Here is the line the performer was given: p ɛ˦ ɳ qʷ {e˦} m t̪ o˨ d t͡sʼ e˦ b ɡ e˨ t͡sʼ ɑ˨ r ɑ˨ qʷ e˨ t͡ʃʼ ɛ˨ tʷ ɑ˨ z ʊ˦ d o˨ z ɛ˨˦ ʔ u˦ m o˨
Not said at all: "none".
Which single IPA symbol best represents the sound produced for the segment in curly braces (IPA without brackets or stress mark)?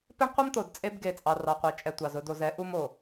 ɛ˦